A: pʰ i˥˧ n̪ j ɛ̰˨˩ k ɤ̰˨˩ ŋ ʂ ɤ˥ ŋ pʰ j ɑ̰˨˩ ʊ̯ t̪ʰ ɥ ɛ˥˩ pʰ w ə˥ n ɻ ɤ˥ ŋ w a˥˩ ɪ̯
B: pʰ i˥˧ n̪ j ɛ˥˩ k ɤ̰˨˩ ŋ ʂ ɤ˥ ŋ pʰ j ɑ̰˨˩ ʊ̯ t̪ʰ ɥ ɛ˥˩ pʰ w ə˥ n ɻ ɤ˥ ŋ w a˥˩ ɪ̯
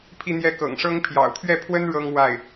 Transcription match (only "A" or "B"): B